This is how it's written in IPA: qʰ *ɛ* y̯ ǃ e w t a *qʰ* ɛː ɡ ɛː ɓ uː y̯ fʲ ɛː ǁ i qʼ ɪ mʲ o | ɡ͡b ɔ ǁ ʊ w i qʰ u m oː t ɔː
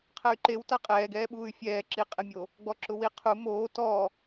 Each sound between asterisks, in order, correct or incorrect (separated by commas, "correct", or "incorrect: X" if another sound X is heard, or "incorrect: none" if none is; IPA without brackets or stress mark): correct, incorrect: qʼ